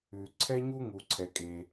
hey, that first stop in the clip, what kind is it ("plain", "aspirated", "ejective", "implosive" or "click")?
click